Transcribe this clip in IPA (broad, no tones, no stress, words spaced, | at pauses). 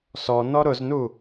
sɔnɔ ɾʊznu